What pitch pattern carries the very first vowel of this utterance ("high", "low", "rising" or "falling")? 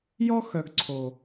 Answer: high